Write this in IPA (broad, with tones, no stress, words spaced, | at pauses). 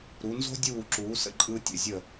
ɾu˩˧nzo̤˥ dʲuː˧˩ǁuː˩˧ sə̰˧ǃʼɯ˧tʲə̰˧˩zʲə˧˩